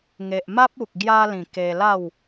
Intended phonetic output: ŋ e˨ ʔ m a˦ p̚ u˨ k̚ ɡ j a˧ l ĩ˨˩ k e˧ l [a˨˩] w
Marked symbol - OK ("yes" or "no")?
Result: no